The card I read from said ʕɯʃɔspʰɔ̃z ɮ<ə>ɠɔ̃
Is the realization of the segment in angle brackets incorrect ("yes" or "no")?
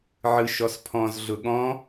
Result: yes